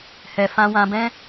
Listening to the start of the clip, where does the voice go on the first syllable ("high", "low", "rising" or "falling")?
low